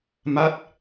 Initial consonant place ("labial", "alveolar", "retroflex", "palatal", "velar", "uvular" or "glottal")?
labial